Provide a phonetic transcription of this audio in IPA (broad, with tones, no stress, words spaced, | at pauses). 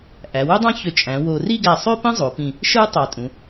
ʔæ˩˧wu˥dˤɑ̃˥çø˧˩ t͡ʃʼæ̃˩˧ wo˧ ri˥˧ɡæ˧˩sˤø˥ pĩ˥zˤo˩˧pĩ˧˩ | ʃɯ˥ tˤɑ˧˩tʼũ˩˧